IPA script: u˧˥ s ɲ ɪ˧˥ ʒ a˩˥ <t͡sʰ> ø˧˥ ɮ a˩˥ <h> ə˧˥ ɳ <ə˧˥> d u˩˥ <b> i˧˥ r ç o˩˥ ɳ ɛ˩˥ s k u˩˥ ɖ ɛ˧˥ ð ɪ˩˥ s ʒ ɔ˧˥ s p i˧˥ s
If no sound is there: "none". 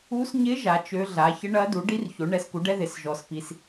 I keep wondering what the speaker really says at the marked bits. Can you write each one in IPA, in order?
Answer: t͡ʃ, ç, ɐ˧˥, ɖ

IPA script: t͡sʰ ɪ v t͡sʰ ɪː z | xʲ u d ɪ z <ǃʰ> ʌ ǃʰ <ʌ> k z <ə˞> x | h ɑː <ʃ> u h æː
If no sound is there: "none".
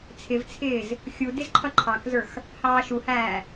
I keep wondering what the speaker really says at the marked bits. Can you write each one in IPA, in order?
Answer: ǃʰ, ɑ, ə˞, ʃ

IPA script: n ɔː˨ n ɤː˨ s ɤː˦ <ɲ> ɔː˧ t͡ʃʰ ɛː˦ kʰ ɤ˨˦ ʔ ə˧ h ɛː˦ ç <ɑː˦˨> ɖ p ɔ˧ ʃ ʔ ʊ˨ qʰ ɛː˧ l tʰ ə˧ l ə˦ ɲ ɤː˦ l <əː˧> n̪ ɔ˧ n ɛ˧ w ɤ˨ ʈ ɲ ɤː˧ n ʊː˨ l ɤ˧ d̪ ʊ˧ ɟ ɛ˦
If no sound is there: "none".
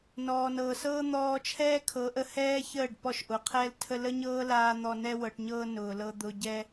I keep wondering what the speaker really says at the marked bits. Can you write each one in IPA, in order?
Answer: n̪, əː˦˨, aː˧

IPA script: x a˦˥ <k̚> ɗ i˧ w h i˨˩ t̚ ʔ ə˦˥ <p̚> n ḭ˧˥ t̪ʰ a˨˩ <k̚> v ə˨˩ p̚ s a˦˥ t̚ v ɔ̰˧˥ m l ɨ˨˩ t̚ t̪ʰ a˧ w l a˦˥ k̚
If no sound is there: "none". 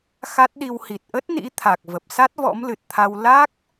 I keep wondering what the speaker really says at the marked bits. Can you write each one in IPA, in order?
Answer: t̚, t̚, k̚

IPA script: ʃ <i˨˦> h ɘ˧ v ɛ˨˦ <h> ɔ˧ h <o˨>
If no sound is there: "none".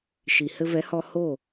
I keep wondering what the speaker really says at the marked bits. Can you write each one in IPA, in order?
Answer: i˨, h, o˦˨

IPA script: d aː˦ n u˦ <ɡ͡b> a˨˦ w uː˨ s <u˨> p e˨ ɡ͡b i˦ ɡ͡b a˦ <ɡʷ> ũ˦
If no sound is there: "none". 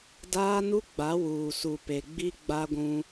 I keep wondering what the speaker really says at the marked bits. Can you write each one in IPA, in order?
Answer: ɡ͡b, u˨, ɡʷ

